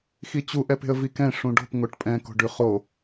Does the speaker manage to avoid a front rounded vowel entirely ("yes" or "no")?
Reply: yes